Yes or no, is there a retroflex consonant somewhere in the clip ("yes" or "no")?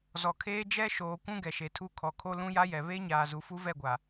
no